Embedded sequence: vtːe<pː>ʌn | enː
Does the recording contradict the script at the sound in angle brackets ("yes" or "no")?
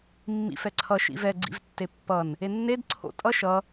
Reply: no